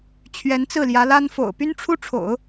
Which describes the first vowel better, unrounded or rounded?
unrounded